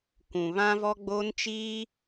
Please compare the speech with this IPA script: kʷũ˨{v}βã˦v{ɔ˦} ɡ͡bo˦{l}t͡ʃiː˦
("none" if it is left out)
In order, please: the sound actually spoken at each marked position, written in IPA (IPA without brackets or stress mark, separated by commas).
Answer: none, ɔ˦, n